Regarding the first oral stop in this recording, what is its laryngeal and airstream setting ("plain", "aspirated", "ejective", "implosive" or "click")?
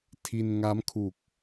aspirated